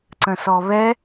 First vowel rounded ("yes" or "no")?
no